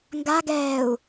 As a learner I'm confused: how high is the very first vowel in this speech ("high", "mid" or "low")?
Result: low